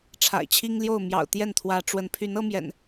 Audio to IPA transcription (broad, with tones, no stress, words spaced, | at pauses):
ʈ͡ʂʰa̰˨˩ɪ̯t͡ɕʰi˦ŋljo˥˨ʊ̯ mjɑ̰˨˩ʊ̯t̪jɛ˥˨nt̪ʰwä˨˦ ʈ͡ʂwə˨˦n pʰy˨˦nɤ˦mjɛ̰˨˩n